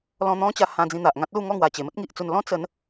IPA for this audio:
l ɔ̃˧ n̪ ɔ̃˦ t͡ɕ a˧ h ã˧ d͡z ĩ˧ n̪ a˨ ʔ ŋ ã˦ t̚ l u˥˧ ŋ ɔ˥˧ ŋ w a˨˩ t͡ɕ e˨˩ m ə˦ t̚ ŋ i˨ ʔ t͡s u˧ n l ɔ̃˦ t͡s ə˨˦ n

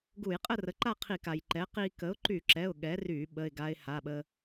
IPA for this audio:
ɡ u˧˩˧ j qʼ ə˥˨ r ə˩˥ ǃ a˥˨ qʰ i˧˩˧ k a˩ j ǃ ɛ˩˥ q i˧ k ə˩˥ ʊ̯ ǃ y˧˩˧ ǁ ɛ˩˧˩ ʊ̯ ɠ ɛ˩˥ r y˧˩˧ ɓ ə˩˧˩ ɪ̯ ɡ a˧ ɪ̯ h a˩˧˩ ɓ ə˧

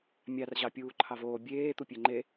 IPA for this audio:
mʲ ɑ r ʑ ɑ pʲ uː ǃʰ ɑ v oː bʲ eː t̪ u pʲ ø ŋ͡ǃ e

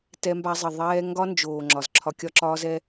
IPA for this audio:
t ɛ˧ m b a˧ zˤ ɪ˨ ðˤ ɛː˧ ŋ ɡ ɒ˦ n d͡ʒ oː˨ ŋ͡ǁ ɒ˨ z ǁʰ ɒ˧ kʲ ɒ˦ ǁ ɒː˦ z ɛ˦

